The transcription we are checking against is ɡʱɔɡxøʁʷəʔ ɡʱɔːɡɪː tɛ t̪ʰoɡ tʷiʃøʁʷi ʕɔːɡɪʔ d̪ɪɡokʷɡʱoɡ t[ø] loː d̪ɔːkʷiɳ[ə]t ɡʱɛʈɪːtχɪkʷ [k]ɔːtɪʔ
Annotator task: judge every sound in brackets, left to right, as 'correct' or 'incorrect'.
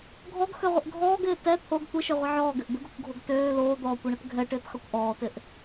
incorrect: øː, correct, incorrect: ʔ

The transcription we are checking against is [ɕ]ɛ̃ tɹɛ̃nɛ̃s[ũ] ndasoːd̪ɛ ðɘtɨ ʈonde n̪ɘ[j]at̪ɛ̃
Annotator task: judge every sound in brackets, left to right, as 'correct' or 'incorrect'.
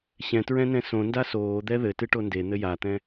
correct, incorrect: õ, correct

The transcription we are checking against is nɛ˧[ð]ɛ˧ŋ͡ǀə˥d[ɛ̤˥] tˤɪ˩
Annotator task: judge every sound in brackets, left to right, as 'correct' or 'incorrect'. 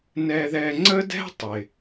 correct, correct

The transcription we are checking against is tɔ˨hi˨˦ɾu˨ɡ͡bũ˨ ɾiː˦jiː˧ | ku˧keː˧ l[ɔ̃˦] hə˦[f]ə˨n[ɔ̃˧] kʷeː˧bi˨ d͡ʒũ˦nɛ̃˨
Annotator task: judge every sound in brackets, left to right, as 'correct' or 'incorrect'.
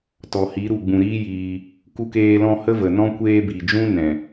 correct, incorrect: v, incorrect: ɔ̃˦

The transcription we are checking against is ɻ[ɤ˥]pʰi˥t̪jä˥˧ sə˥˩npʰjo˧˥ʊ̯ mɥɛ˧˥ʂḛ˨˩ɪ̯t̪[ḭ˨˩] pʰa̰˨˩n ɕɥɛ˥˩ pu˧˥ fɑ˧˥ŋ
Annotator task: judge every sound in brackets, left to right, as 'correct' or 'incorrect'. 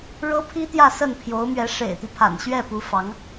correct, incorrect: i˦

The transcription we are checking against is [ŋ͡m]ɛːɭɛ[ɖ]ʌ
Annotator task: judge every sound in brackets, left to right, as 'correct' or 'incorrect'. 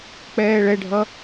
incorrect: k͡p, incorrect: ɖʱ

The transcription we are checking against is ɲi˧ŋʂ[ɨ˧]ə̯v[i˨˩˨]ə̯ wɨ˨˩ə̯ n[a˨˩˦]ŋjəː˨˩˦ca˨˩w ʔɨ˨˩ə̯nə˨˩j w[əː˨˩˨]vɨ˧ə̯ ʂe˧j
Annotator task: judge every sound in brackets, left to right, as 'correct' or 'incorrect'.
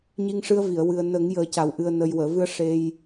correct, correct, incorrect: ə˨˩˦, correct

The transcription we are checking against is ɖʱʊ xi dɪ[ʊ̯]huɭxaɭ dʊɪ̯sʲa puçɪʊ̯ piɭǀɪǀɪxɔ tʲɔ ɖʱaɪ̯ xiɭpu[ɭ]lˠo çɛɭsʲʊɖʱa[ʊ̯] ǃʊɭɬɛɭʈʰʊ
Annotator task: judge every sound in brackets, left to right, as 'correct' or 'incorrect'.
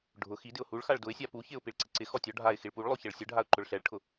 correct, correct, correct

